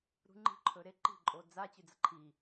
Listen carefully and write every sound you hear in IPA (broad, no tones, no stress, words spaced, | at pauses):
ɾṳŋ͡ǃi̤ ǃʰɵɾeǃi̤ ǃʼod͡za t͡ɕʉd͡zɐǃʰi